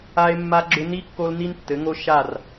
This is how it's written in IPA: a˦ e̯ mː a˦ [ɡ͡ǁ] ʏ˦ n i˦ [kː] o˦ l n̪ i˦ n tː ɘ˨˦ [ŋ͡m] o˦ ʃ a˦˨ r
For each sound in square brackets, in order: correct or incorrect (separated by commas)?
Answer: correct, correct, incorrect